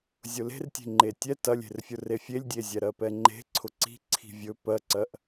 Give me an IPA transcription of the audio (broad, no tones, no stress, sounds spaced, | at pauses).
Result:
zʲ ʊ l e̤ r tʲ e̤ ŋ͡ǃ e tʲ ɛ t ɐ lʲ e̤ r fʲ ʊ r e fʲ e lʲ dʲ e zʲ ɛ ɾ ɜ p ɛ ŋ͡ǃ e̤ ǀʰ ʊ ǀ i̤ ǀʰ i̤ vʲ ɵ p ɜ ǀ ɜ ʔ